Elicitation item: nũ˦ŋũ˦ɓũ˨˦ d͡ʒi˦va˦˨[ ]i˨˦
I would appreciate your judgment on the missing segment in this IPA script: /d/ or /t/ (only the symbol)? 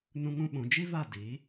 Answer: d